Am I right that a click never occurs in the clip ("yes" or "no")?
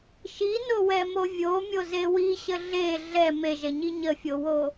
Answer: yes